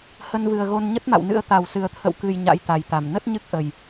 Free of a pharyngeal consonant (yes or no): yes